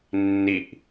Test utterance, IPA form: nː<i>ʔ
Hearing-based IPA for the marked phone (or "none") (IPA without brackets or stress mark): i